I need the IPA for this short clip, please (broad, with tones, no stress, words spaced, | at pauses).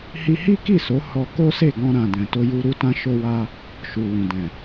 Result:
hi˧hi˦ki˦˨so˨˦ hɔ˧ko˦se˦˨ ɡɔ̃˧ ɾã˨ dɛ̃˨to˧ju˧ ɾu˧tã˧ʃo˧wa˧ | ʃu˨wũ˨ dɛ̃˨